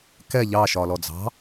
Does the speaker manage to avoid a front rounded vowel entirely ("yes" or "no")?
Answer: yes